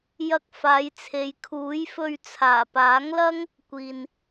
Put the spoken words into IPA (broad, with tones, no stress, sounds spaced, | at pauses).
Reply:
j ɐ˧ k̚ f aː˨˧ j t͡sʰ e˨˧ j kʰ uː˨˥ j f ɵ˧ ɥ t͡sʰ aː˨˩ p aː˨˥ ŋ l ɐ˥ ŋ | kʷ iː˨ n